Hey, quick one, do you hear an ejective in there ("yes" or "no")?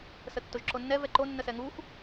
no